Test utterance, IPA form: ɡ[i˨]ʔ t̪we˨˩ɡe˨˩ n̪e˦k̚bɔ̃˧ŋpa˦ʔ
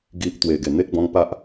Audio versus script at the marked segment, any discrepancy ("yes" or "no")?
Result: no